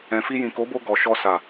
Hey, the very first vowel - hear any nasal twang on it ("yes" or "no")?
yes